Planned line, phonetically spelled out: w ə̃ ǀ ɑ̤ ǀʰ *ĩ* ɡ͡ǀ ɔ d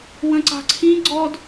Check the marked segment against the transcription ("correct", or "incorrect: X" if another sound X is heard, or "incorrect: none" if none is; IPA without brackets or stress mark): correct